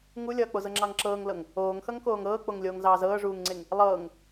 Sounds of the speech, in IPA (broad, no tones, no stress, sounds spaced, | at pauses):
ŋ u lʲ ʌː k͡p o z ɤ ŋ͡ǁ ɑ ŋ ǁ ɤː ŋ l ɤ ŋ | oː ŋ x ʌ ŋ k oː ŋ ɤː k͡p o ŋ lʲ oː ŋ z ɑː z ɤː ʐ uː ŋ ŋ͡ǀ e ŋ | lˠ ɤː ŋ